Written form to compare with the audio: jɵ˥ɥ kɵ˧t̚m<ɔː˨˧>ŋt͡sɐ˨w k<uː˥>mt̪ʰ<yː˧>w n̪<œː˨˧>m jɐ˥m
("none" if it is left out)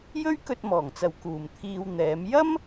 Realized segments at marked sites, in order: ɔː˨˩, uː˨˩, iː˧, ɛː˨˧

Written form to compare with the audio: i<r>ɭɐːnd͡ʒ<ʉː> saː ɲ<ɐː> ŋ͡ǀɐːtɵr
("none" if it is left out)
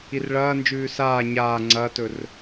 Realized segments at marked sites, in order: r, ʉː, aː

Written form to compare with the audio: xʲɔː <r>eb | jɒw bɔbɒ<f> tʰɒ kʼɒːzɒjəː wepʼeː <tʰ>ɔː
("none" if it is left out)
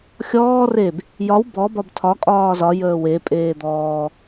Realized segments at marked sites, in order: r, b, d̪

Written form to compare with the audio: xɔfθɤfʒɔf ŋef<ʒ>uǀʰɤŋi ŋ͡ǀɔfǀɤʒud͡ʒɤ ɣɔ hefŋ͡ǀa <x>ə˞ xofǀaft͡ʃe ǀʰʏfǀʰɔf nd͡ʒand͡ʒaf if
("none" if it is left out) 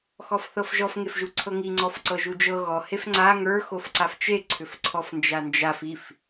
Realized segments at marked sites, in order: ʒ, ŋ

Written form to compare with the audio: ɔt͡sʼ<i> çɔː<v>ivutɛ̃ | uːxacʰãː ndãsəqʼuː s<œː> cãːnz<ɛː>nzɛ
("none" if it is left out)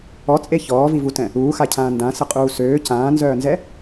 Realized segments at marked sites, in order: e, v, øː, œː

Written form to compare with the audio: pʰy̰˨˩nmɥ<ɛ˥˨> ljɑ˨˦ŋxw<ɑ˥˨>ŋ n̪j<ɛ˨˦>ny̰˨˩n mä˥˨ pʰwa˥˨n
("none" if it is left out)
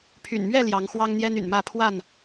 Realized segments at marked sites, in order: ɛ˥˨, ɑ˦, ɛ˦

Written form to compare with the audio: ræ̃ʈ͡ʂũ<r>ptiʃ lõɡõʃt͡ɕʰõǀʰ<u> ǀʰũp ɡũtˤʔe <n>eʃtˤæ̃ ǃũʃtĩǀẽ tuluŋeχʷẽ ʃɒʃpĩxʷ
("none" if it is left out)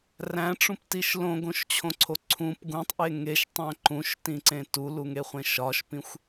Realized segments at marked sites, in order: none, o, ŋ

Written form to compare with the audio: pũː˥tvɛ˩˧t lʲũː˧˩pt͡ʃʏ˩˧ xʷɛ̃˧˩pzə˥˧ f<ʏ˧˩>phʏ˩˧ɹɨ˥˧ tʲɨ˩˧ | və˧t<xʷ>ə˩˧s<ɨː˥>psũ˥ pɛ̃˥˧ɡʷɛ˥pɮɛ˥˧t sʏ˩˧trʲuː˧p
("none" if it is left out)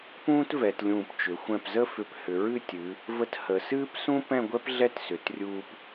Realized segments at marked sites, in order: ʏ˧˩, h, ɨː˥

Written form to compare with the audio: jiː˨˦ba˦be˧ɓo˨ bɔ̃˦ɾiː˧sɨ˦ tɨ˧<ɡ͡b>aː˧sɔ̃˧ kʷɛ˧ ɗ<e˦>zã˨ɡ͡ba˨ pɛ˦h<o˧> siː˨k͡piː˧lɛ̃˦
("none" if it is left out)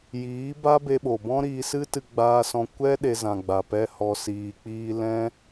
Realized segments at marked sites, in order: ɡ͡b, e˧, ɔ˧

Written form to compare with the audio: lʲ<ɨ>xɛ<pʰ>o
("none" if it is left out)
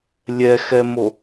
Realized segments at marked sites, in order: ɛ, m

